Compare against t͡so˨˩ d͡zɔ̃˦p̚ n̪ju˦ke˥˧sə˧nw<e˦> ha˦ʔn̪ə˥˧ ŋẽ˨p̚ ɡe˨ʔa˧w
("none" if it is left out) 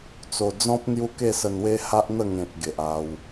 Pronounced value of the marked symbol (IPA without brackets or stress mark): e˦